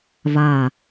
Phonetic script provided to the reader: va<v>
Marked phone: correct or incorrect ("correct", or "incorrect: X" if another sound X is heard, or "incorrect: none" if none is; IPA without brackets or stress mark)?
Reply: incorrect: none